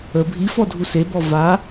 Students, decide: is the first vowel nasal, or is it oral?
oral